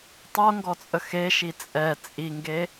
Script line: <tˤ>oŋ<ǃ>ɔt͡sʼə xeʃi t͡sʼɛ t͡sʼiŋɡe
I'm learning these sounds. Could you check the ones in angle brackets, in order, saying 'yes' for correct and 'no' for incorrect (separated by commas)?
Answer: yes, no